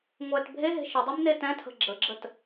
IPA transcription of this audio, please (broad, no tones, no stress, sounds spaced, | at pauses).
ŋʷ ɛ t bʱ e ɦ e̤ ʃ ə dˤ e m n e t ɛ̃ tʰ ə̤ ɡ͡ǁ ə ɡ͡ǁ ə t